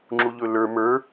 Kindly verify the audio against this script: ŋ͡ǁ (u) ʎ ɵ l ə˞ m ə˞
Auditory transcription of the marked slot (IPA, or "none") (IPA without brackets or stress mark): u